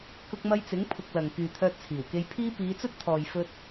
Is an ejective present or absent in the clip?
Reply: absent